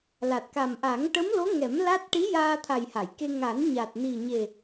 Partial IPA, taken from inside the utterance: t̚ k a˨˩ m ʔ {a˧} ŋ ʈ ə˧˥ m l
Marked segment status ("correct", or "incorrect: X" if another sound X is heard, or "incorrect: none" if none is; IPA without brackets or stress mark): incorrect: a˨˩˦